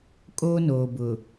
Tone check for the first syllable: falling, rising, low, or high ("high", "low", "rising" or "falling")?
high